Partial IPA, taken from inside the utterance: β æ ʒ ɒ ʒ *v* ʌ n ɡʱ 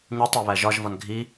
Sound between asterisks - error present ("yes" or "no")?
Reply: no